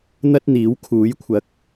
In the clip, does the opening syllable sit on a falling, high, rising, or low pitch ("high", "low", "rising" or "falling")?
high